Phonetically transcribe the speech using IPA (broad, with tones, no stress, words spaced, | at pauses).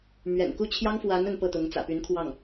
mɥɛ̰˨˩nku˥˩t͡ɕʰjɑ˥ŋ fwa˧˥n ə˧˥npɤ˥˩t̪ʊ˧˥ŋ t͡sä̰˨˩py˧˥nkʰwɑ˥˩ŋ